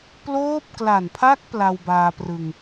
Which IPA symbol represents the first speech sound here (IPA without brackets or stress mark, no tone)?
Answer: p